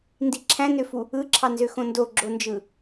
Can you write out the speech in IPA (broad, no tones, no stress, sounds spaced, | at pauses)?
n d i ǁʰ æ̃ n ø f u | ɯ ǁʰ ɑ n z ø x õ n d o ɡ͡ǁ o n d͡ʒ ɯ